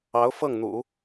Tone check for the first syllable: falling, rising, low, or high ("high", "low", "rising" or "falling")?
rising